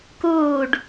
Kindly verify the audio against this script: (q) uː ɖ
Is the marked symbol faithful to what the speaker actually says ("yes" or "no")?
no